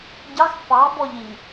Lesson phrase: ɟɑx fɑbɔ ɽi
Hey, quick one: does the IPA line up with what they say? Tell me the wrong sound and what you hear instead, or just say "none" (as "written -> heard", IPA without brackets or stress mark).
ɽ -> ʎ